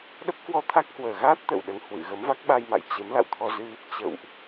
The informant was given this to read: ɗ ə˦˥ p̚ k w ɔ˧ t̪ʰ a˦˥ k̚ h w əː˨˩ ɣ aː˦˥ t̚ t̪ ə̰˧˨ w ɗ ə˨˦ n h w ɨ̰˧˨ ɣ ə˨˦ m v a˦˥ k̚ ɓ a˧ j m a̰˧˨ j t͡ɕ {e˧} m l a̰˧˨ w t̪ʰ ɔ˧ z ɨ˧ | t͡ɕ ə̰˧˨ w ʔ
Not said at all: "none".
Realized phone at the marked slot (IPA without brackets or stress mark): e˨˦